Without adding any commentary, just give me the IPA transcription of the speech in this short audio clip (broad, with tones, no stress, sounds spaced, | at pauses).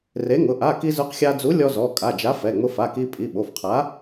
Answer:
r e˨˥ ŋ ʊ˩˧˩ ʔ a˩˧˩ k i˧ z ʊ˨˥ q xʲ a˧ d͡z u˨˥ lʲ ɔ˧ z ɔ˩˧˩ kʼ a˩˧˩ d͡ʒ a˨˥ f ɛ˩˧˩ ŋ͡m ʊ˧ f a˩˧˩ k i˧ pʼ i˩˧˩ ɓ o˩˧˩ f qʰ a˨˥